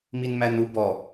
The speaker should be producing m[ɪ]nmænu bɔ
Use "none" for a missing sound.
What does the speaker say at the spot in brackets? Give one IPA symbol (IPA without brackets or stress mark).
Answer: i